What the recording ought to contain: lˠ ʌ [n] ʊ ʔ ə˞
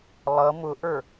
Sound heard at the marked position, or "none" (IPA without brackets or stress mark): m